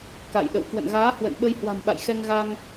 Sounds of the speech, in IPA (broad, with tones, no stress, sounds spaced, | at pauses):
k a̰˧˨ j ɗ ə̰˧˨ w k w ə̰˧˨ n ɣ aː˨˦ h w ə̰˧˨ n ɓ ə˧ j h w a̤˨˩ m ɓ a̰˧˨ j x ɛ˧ ŋ ɣ a˧ ŋ